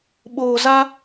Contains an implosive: yes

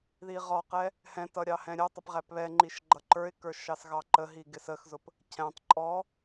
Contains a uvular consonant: yes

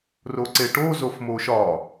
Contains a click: yes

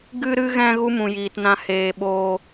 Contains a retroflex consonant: no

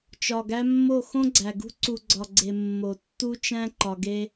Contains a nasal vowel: yes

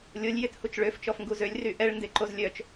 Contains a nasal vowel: no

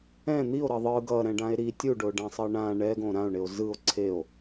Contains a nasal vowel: yes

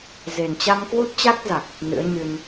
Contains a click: no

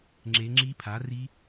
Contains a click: yes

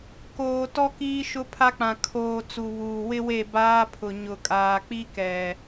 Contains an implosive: no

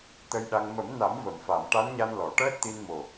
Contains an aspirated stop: no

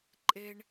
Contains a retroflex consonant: yes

